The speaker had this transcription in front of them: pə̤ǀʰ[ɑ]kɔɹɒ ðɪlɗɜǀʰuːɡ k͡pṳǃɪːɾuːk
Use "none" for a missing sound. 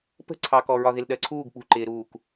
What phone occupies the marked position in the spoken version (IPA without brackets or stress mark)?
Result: ɑ